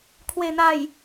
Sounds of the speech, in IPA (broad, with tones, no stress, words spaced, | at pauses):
kʰwe˨˩n̪a˨˩j